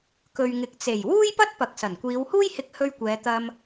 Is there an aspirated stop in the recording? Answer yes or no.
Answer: no